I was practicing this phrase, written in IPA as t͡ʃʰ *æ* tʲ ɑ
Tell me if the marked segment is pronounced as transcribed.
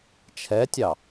no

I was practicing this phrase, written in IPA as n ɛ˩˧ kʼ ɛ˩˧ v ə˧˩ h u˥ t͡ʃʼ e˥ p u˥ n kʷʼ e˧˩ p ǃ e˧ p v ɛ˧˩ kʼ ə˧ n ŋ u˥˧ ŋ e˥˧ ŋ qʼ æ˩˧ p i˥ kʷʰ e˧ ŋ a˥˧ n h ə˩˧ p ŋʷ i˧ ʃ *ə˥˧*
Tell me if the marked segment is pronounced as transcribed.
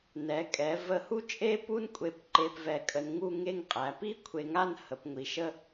no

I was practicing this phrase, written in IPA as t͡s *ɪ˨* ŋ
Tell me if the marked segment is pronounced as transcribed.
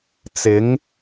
no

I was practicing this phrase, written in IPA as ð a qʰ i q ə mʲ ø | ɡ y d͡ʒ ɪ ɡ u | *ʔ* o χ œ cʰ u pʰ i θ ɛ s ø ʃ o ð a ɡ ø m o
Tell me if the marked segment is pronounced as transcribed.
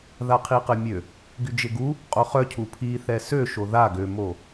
no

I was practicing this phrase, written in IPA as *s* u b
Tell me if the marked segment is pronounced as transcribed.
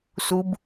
yes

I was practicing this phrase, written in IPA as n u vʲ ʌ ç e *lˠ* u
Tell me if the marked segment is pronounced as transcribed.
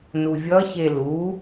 no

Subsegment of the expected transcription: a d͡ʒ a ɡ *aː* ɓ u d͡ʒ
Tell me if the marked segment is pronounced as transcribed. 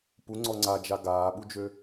yes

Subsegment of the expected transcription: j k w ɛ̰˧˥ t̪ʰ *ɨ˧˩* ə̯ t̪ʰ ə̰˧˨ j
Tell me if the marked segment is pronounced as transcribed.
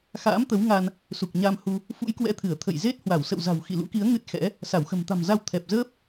yes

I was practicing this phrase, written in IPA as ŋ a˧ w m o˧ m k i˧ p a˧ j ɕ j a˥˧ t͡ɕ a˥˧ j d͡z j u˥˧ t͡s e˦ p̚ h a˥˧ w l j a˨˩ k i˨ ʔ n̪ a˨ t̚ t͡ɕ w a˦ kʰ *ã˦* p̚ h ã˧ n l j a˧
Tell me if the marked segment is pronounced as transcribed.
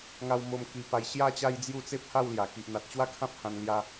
yes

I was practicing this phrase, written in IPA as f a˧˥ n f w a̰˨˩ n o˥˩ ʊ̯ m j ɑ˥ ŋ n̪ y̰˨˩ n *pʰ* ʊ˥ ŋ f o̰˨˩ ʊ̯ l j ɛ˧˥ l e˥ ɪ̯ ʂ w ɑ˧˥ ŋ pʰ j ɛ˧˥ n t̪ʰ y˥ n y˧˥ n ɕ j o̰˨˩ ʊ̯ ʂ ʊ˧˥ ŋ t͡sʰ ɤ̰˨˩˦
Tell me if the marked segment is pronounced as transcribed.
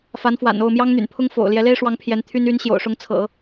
yes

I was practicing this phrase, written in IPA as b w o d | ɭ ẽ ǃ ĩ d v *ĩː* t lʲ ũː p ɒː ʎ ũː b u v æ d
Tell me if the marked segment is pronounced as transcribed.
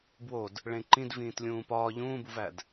yes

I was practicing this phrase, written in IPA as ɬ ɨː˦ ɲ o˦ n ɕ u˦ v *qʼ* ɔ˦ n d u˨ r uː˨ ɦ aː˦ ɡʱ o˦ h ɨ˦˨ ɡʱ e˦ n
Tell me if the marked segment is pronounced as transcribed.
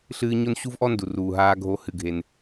no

